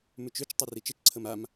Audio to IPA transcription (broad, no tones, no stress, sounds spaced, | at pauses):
m ʉ t͡ʃ ø t͡ʃ tˤ e r i t͡ʃ ə t͡ʃ ǀʰ ə m a m